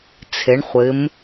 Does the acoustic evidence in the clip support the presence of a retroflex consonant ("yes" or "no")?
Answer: yes